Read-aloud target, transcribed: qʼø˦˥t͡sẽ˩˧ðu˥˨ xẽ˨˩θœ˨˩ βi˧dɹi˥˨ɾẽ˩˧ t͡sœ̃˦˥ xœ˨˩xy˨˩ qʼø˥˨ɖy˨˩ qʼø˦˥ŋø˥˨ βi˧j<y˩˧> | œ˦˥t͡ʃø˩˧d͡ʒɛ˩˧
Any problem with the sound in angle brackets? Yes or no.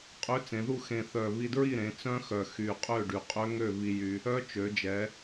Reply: yes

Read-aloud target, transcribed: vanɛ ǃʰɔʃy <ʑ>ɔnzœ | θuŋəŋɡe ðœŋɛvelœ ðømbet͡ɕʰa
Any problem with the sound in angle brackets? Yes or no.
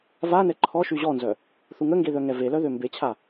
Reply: no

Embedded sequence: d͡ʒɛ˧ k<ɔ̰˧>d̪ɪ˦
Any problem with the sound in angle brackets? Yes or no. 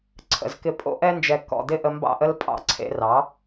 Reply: no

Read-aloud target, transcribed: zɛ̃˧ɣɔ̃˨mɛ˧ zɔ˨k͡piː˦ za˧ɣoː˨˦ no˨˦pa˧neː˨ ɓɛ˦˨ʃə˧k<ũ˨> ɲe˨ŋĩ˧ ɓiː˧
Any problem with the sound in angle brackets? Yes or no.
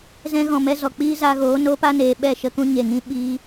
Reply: yes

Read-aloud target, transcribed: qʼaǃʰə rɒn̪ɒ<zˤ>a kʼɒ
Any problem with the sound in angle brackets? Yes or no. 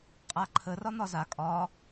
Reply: yes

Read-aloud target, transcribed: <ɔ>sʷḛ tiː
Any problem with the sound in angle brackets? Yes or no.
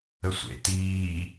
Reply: yes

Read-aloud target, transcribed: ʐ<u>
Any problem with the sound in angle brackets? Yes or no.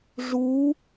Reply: no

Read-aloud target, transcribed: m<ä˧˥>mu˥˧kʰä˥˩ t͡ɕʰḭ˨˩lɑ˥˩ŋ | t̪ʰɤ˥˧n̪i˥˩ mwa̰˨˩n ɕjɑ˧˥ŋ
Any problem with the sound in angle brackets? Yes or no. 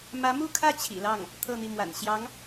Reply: no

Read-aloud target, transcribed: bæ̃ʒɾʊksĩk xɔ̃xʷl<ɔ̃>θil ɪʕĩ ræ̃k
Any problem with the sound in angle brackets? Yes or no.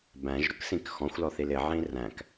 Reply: yes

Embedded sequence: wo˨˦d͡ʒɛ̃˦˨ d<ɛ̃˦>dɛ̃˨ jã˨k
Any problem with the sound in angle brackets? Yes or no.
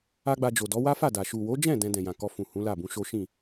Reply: yes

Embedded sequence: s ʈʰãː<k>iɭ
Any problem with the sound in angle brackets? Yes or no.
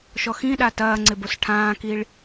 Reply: no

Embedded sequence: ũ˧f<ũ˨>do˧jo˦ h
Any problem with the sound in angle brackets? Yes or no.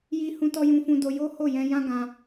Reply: yes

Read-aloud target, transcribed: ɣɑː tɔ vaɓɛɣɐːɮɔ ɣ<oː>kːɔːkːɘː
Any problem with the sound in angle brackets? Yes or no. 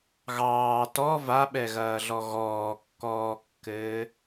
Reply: yes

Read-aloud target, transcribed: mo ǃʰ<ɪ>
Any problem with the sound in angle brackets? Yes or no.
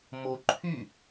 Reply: yes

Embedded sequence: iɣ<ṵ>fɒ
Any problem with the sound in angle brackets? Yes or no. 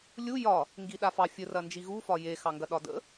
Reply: yes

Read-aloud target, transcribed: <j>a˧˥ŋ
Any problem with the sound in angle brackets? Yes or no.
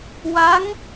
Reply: yes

